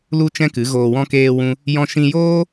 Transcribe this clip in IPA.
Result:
l u˦ t͡ʃ ɛ̃˦ k ɨ˨˦ ɣ oː˧ w ɔ̃˦ k eː˦ w ũ˦ | j ɔ̃˧ ʃ ĩ˧ j oː˦

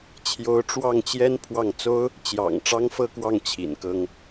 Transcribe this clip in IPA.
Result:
t͡ɕʰ j o˧˥ ʊ̯ ʈ͡ʂ w ɑ˥˩ ŋ t͡ɕ j ɛ˥ n pʰ w ɑ˥˩ ŋ t͡s o˥ ʊ̯ | t͡ɕ j ɑ̰˨˩ ŋ ʈ͡ʂ ɑ˥ ŋ f ɤ˥˧ k w ɑ˥˩ ŋ t͡ɕʰ ḭ˨˩ n k ɤ˥ ŋ

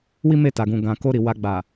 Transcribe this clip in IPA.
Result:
w i˦ m e˦˨ t a˨ ɡ ũ˨ ɡ ã˨ k o˧ ɾ i˨ w a˧ ɡ͡b a˨

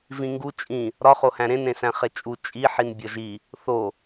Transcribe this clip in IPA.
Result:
v ĩ ŋ ɡ u t͡ʃʼ ĩ | ɾ ɒ χ o h æ̃ ɾ ẽ n ɾ ẽ s æ̃ χ e t͡ʃʼ u t͡ʃʼ i ħ i n bʲ ɒ ʒ i | θ o

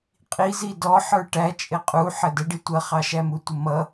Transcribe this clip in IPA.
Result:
qʼ i z i d ɔ ħ ə˞ ʈ æ t͡ʃʼ ɪ qʼ u ħ ə d ə ɖ i tʷ ʌ χ ɑ ʃ æ m u tʷ ə m ʌ

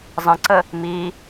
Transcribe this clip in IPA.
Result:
zˤ ə̃ ǀ ə | m i

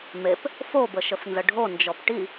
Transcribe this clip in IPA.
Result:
m e p | f o b ə ʃ ə f n z ə ɖʱ o n d͡ʒ ɔ p ʈ i

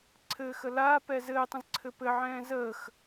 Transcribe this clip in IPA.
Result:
ǀʰ ɘː x ə l aː p ɛ z ɘː tˤ ə̃ z ǀʰ ɘ p ɘ ʕ ɛ̃ː z əː x

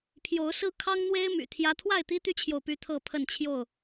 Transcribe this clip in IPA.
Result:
pʰ j o˨˦ ʊ̯ s ɹ̩˦ kʰ ɑ˦ ŋ n̪ w e˦ ɪ̯ m y̰˨˩ t̪ʰ j ä˦ t̪ʰ w a˥˨ ɪ̯ t̪ i˦ t̪ y˦ t͡ɕʰ j o˨ ʊ̯ p y˦ t̪ʰ ɤ˥˨ pʰ ə˥˨ n t͡ɕʰ j o˥˨ ʊ̯

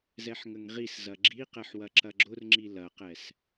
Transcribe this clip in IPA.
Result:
z ɛ ħ ŋ ə ŋ ʁ i s z ɐ ɡ͡ǁ i q ɛ ħ w ɐ ǁ ɐ ɡ͡ǁ ʊ r ŋ͡ǁ i l ɐ q ɛ s

